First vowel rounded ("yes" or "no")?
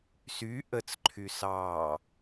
yes